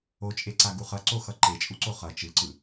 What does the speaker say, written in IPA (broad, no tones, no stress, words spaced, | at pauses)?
ot͡ʃʼeǀaɡu χʌǀoxʌ ǃet͡ʃʼuǀo χʌ t͡ʃɯǀɯ